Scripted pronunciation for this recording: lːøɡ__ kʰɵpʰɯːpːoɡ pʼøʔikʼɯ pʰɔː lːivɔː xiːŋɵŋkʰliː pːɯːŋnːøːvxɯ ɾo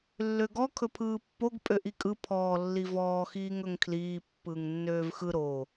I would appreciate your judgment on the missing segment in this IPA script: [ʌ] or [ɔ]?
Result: ɔ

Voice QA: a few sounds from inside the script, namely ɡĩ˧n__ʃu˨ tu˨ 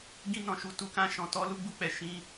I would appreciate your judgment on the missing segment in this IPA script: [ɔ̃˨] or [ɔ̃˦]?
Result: ɔ̃˨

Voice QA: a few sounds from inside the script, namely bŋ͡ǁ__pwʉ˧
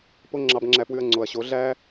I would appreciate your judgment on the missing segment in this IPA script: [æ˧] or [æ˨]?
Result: æ˧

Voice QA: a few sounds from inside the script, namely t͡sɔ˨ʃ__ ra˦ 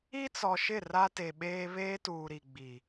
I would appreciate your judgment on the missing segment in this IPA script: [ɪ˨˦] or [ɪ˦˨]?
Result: ɪ˦˨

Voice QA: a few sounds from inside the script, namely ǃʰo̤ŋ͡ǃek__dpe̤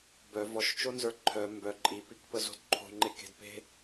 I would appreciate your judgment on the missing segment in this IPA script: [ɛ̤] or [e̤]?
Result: e̤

